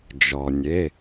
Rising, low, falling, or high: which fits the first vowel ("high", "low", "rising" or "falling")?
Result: low